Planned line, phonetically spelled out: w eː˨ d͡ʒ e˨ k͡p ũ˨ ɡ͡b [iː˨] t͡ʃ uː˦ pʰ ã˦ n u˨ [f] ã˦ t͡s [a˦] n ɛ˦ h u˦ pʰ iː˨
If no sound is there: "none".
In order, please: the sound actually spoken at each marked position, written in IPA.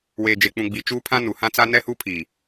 i˨, h, a˦

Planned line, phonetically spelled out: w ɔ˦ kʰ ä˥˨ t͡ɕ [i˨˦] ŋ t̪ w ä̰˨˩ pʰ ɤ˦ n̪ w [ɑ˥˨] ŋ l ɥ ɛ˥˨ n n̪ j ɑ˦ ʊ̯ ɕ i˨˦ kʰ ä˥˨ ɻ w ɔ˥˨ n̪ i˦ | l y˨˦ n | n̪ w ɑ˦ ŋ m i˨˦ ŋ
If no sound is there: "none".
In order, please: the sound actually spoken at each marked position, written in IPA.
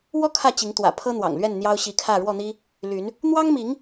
i˨˦, ɑ̰˨˩

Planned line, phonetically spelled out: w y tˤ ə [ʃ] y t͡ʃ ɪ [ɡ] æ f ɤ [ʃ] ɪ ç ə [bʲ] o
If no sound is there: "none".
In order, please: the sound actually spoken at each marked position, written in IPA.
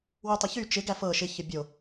ç, ɡ, ʃ, bʲ

